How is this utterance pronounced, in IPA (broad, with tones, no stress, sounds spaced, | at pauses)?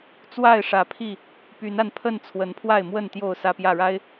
t͡s w a˥˨ ɪ̯ ʂ ä˨˦ pʰ i˥˨ | p y˨˦ n a˧ n pʰ ə˥˨ n t͡sʰ w ə˨˦ n pʰ w a˥˨ ɪ̯ m w ə˥˨ n t̪ j o˥˨ ʊ̯ s ä˦ p j ä˥˨ ɻ a˦ ɪ̯